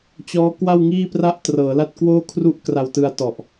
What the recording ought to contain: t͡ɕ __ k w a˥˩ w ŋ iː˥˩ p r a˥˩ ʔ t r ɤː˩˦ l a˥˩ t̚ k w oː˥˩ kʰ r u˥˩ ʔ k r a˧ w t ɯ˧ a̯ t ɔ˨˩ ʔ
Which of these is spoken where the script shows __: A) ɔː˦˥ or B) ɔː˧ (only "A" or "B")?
A